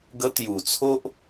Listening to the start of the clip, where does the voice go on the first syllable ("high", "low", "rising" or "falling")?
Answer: high